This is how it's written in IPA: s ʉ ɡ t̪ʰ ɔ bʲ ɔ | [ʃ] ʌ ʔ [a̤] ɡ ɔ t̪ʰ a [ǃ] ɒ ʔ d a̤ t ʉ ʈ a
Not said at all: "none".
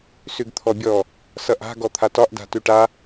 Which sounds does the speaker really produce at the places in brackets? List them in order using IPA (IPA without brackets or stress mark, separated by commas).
s, a̤, t